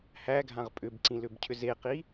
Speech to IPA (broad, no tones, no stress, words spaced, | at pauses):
hæɡʱãʁ pʼʏbǀĩ lʏbcʰʏzeqi